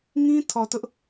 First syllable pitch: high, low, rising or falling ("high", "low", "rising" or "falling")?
high